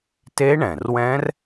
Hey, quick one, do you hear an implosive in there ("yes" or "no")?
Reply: no